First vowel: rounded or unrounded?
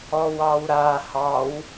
rounded